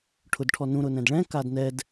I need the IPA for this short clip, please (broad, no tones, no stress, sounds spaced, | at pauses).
ʈʰ ʊ d ʈʰ ɔ n ũ ɾ ʊ n ɛ̃ d ɭ ɛ̃ k a d n ɛ d